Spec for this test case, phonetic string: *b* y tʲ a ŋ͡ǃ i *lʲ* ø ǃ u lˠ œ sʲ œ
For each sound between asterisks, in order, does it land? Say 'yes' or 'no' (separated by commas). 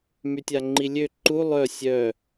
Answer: no, yes